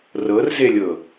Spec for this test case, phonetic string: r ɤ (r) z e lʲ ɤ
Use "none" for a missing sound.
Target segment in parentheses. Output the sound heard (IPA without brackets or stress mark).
r